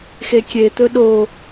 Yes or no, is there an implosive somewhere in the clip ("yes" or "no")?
yes